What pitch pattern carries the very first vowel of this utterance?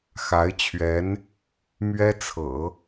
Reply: rising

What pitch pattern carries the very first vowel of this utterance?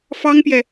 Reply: high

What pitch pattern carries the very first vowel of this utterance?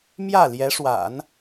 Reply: falling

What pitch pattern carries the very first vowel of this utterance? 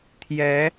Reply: rising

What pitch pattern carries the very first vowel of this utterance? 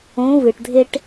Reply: rising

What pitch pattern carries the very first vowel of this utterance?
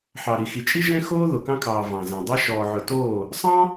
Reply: low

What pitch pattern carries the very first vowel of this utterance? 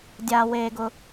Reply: low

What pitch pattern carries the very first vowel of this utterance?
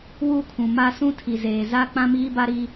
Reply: falling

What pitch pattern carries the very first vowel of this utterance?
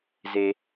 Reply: high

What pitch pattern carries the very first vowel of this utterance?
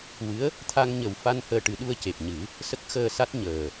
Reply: rising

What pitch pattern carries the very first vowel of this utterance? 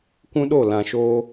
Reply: high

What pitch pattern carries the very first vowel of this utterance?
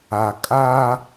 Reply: low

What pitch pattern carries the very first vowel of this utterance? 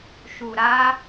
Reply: low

